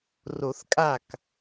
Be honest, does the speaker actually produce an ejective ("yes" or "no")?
yes